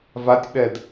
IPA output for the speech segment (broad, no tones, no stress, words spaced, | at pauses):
vatʲɓɛd